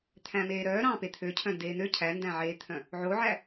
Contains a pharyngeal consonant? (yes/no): yes